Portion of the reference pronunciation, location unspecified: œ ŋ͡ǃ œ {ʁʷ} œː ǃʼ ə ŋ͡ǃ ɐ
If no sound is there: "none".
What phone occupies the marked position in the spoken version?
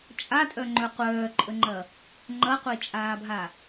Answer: qʷ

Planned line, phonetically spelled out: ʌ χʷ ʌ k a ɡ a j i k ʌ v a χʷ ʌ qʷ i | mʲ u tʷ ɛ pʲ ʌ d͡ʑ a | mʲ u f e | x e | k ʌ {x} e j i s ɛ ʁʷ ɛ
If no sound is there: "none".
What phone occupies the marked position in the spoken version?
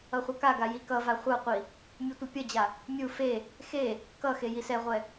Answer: x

